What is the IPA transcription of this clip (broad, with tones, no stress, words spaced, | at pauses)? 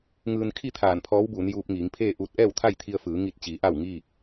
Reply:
ŋɯː˧nkʰi˥˨ t̪ʰaː˧˩npʰɔː˧˥wbuː˩˧n juː˧p̚ŋiː˩˧ŋpʰeː˥˨ʔuː˧t̚ ʔɛː˥˨wt̪ʰa˥˨jt̪ʰi˧ə̯fɯː˩˧ ŋi˧˩t̚t͡ɕi˩˧ ʔa˥˨wŋiː˥˨k̚